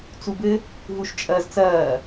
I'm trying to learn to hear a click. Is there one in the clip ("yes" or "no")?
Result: no